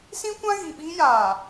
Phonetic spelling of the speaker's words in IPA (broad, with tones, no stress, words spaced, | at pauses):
sĩ˦kʷã˦ ɣi˨ɓi˦ jaː˨